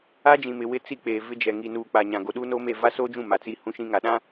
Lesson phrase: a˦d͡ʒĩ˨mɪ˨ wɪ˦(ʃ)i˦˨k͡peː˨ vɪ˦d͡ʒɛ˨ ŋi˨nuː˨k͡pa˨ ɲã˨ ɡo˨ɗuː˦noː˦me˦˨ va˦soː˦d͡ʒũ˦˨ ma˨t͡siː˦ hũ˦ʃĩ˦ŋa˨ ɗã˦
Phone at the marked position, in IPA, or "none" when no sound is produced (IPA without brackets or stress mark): t͡s